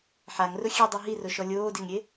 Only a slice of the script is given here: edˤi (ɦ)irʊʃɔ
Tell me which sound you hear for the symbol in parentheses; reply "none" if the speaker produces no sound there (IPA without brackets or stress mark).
ɦ